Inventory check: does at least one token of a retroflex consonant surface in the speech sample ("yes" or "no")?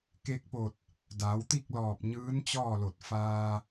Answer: no